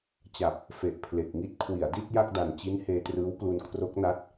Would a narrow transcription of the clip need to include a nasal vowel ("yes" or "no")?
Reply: no